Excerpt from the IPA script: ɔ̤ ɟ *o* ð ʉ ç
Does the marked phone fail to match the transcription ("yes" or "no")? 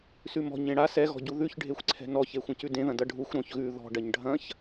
yes